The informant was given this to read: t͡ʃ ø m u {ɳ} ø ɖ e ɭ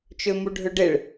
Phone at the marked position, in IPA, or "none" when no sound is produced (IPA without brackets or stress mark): ɖʱ